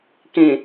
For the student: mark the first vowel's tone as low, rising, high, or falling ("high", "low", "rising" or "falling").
low